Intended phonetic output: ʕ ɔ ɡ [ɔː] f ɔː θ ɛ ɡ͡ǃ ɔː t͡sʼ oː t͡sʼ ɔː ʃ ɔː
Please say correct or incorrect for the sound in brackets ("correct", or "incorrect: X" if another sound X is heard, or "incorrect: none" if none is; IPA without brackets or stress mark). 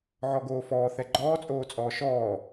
incorrect: oː